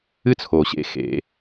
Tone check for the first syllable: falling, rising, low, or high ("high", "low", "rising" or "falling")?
high